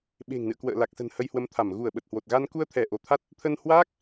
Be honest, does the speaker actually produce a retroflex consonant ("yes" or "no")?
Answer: no